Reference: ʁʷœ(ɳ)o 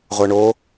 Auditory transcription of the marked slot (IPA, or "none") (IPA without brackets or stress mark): ɳ